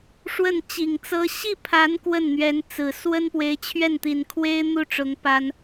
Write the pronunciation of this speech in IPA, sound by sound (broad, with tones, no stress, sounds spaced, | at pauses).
ʂ w ə˥˩ n t͡ɕ i˨˩ ŋ t͡s ɤ˥ ɕ i˥˩ pʰ a˧˥ n k w ə˥˩ n n̪ ɥ ɛ˧˥ n t͡s ɹ̩˨˩ s w ə˥ n p w e˧˥ ɪ̯ t͡ɕʰ ɥ ɛ˥˩ n t̪ i˨˩ n kʰ w e˥ ɪ̯ n̪ u˥˩ ʈ͡ʂ ʊ˧˥ ŋ p a˥ n